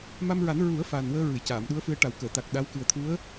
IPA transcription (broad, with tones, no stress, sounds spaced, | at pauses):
m a˧ m ɹ a˨˩˦ n ɹ u˨˩˦ ə̯ f a˨˩ n w əː˧ ɹ ɨ˨˩˨ j c aː˨˩˨ m ɗ u˧˥ ə̯ f ɨ˧ ə̯ ʈ a˨˩ w k əː˨˩˨ t̪ a˨˩ k̚ ɗ a˧˥ w k ɨ˨˩ ə̯ t̪ʰ u˧˥ ə̯